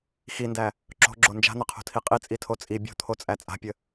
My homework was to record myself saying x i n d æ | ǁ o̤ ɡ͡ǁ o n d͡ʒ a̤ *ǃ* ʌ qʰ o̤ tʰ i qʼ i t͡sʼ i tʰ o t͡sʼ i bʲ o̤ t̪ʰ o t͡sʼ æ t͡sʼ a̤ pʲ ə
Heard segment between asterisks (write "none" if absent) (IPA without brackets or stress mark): n̪